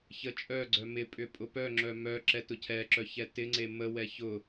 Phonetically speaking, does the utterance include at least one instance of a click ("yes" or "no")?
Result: yes